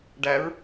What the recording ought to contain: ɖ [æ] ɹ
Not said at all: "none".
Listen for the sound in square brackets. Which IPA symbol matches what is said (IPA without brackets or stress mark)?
æ